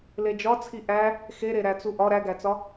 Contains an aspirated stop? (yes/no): yes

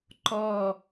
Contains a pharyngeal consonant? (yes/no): no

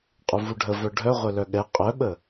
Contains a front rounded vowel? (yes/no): yes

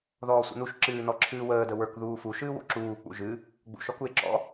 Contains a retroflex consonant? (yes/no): no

